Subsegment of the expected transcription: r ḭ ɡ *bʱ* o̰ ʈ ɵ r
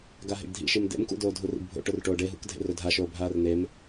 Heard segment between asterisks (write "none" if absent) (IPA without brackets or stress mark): bʱ